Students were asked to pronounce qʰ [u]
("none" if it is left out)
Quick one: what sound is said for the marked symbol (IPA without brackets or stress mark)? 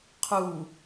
u